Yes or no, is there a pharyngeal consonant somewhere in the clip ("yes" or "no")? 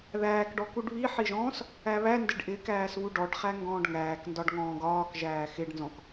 yes